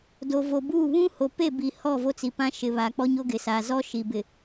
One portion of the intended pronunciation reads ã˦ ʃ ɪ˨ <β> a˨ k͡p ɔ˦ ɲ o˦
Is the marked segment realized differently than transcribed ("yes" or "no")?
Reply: no